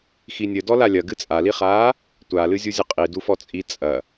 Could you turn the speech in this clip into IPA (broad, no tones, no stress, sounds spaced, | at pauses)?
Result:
x i nʲ ɘ d ɔ l a lʲ ɐ ɡ ɨ t͡sʼ a l i χ aː | tʷ a l ɨ zʲ u zʲ ɐ qʼ i d u f ɔ t͡sʼ i t͡sʼ ɐ